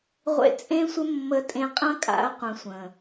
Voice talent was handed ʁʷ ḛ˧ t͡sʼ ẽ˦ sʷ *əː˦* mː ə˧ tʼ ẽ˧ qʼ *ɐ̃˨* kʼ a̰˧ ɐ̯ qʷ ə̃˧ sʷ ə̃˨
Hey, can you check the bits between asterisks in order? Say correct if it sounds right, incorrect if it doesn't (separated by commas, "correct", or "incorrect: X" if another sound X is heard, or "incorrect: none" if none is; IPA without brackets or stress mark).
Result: incorrect: ə˦, incorrect: ɐ̃˦